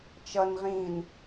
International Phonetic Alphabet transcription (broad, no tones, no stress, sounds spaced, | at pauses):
t͡ʃ ʌ n ʁ ĩː n